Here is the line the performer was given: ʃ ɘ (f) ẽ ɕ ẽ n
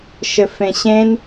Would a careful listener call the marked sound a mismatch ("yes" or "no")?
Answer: no